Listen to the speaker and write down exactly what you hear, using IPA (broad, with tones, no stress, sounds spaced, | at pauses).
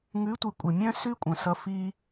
ŋ ʉ˨˦ tʷ i˨ kʷʼ ə˨ mʲ œ̃˦ s ʉ˦ kʷʼ œ̃˨ s ʌ˧ f i˦